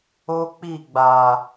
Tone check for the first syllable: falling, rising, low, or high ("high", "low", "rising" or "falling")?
high